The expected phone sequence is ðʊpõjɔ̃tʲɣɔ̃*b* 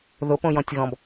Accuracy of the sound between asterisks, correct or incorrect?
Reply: correct